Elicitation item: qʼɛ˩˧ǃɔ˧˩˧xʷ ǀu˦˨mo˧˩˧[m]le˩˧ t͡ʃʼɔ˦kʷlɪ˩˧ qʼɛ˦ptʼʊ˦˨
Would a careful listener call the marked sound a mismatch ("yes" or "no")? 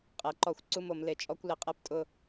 no